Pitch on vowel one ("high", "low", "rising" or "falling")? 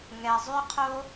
low